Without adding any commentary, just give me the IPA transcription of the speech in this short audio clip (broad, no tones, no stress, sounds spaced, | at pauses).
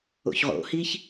o̰ ç ʁ o̰ h i ç